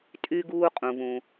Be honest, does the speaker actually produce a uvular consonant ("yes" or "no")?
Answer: yes